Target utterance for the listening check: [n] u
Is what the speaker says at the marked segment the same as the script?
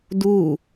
no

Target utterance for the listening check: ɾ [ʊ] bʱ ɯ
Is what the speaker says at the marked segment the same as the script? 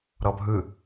no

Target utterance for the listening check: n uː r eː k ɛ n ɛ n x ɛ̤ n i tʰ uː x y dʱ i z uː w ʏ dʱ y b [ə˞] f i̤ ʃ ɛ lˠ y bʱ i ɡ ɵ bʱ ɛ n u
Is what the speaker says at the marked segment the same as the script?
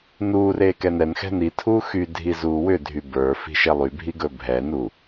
yes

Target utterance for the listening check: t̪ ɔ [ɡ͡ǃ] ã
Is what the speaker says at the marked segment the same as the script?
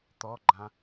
yes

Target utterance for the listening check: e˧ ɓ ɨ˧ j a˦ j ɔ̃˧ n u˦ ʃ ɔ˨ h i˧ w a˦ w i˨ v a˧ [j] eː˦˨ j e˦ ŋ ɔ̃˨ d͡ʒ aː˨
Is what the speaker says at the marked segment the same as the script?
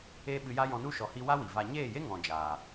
no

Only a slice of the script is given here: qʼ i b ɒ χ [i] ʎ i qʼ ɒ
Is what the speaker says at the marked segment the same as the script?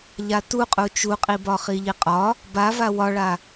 yes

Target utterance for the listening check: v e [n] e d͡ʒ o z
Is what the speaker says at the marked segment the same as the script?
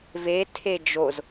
no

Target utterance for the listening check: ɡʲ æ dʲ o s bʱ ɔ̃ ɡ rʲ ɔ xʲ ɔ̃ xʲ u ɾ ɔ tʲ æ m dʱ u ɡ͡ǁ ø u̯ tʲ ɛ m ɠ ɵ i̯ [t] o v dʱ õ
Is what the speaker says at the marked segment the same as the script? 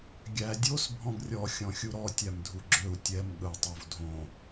no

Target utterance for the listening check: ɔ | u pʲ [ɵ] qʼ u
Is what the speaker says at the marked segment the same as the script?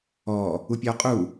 no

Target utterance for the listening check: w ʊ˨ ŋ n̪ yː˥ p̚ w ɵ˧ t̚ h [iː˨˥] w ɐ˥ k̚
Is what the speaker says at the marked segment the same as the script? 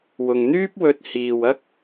no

